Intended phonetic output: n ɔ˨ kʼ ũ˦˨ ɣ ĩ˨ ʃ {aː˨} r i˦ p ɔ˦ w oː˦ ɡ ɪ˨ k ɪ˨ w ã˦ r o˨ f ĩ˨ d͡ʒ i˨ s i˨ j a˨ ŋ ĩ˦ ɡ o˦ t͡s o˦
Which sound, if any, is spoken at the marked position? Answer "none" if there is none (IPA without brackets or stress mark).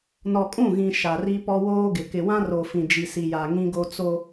a˨